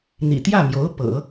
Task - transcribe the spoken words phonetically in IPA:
n̪ ḭ˨˩ t̪ j ä˥˩ m j o˧˥ ʊ̯ p ɤ̰˨˩˦

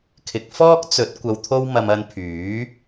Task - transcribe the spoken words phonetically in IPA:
kʰ ɪ˨˥ k̚ f ɔː˥ k̚ t͡s ɵ˨˥ t̚ kʷ ɐ˧ w t̪ʰ o˥ w m ɐ˧ m ɐ˧ n pʰ yː˨˥

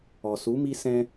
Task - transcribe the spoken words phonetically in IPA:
ɔ˨ s u˨˦ m i˦ s ɛ̃˦

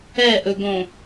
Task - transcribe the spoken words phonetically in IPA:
ɛ ʔ ɵ ɡ õ

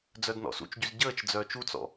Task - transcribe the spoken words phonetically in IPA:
d͡z œ d n ɔ̰ s ṵ t͡ʃ ɟ y z ɟ əː t͡ʃ d͡z œː t͡ʃ u t͡s ɔ̰

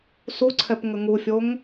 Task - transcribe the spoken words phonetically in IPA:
s u ǀʰ ɛ p ŋ ə ŋ u fʲ o ŋ

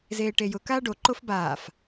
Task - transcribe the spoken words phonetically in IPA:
z eː ʈ e j ʊ k aː ɖ o ǃ o f b aː f

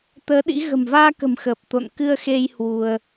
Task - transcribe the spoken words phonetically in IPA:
t̪ əː˨˦ ɗ ḭ˧˥ ɣ ə̤˨˩ m v aː˧ k ə̤˨˩ m x əː˨˩ p̚ t̪ o̰˧˨ n k ɨ˧ ə̯ x e˧ j h w u˧ ə̯

